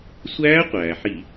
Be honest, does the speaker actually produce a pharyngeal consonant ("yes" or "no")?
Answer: yes